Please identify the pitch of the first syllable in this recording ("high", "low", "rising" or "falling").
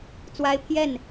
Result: high